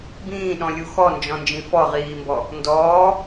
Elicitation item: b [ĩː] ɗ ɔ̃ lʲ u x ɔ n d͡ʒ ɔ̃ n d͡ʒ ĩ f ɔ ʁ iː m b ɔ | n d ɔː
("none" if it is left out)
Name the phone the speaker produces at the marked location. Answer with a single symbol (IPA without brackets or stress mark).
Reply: ĩː